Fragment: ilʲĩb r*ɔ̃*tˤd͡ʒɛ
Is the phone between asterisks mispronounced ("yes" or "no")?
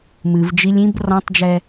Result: no